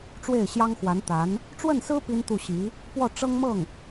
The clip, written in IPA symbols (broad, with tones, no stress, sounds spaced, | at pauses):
ʈ͡ʂ w e˥˩ ɪ̯ ɕ j ɑ˥ ŋ x w a˧˥ n t̪ a˧˥ n | ʈ͡ʂ w ə˥˩ n s ɹ̩˥ p i˥ n t̪ u˥˩ ɕ i˧˥ | p w ɔ˥˩ ʈ͡ʂ ɤ˥ ŋ m ɤ˥˩ ŋ